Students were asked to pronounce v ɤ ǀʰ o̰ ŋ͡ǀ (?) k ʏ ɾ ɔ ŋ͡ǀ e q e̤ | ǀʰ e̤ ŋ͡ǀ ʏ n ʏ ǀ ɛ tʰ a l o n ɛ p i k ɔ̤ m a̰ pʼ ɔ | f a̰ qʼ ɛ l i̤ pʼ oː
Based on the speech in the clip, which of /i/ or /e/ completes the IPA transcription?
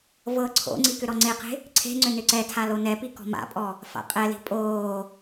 i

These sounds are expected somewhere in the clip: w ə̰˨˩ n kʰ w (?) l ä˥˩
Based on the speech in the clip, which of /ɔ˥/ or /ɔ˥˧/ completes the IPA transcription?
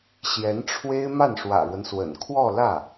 ɔ˥˧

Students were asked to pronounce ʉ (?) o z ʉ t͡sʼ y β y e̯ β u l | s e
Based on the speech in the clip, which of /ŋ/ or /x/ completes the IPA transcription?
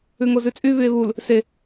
ŋ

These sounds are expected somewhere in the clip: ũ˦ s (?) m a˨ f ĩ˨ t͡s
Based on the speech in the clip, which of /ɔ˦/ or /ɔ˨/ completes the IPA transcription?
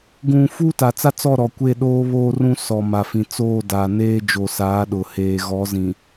ɔ˨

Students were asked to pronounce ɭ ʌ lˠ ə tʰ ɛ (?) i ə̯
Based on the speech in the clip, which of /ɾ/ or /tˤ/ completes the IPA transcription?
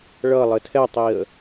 tˤ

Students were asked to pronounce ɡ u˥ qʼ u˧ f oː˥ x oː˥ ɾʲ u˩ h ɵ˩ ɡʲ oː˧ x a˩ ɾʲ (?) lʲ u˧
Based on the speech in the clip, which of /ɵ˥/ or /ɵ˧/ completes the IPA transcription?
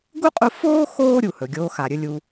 ɵ˧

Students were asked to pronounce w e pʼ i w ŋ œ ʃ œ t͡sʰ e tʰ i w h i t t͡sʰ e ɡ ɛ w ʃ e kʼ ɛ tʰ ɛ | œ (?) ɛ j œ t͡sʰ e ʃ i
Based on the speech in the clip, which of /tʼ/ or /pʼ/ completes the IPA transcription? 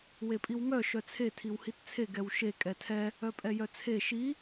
pʼ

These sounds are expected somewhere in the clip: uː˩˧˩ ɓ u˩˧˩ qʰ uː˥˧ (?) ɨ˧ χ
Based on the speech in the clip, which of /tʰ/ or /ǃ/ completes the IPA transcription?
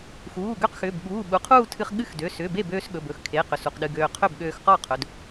tʰ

